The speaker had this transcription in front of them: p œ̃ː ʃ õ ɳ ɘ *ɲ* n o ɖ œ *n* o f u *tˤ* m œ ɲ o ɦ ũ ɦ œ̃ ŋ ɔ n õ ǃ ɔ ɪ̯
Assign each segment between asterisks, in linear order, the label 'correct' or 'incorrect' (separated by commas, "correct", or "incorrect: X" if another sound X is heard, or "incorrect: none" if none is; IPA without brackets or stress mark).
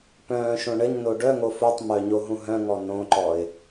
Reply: correct, incorrect: ŋ, correct